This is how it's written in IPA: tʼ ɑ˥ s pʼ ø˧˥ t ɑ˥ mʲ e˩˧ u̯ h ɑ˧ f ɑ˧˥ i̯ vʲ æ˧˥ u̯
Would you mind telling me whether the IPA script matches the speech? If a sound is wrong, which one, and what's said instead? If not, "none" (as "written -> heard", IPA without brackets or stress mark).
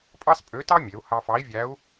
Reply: tʼ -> pʼ